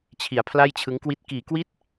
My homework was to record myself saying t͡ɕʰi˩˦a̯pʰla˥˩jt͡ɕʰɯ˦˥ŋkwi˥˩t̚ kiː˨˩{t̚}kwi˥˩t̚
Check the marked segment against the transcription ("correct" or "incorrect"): incorrect